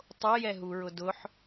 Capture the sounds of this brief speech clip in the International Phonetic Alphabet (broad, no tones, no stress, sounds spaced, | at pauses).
tˤ o j ɛ ɦ u ɹ ʊ d ʊ ħ